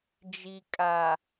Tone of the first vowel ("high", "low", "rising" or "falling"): low